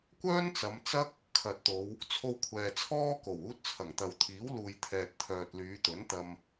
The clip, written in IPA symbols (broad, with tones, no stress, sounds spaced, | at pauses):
kʷ œː˥ n t͡s ɐ˨˧ m t͡s ɐ˥ k̚ | kʰ ɐ˨ t̚ t̪ o˨˧ w | t͡sʰ o˧ w kʷʰ ɛː˨ t͡sʰ ɔː˥ k o˨˩ w uː˥ t̚ t͡sʰ ɐ˨˩ ŋ t̪ ɐ˨ w t̪ʰ iː˨˥ w l uː˨ j t̪ʰ ɛː˨ t̚ t̪ʰ œː˨ t̚ l yː˨˧ t̪ ɵ˨˥ n t̪ ɐ˧ m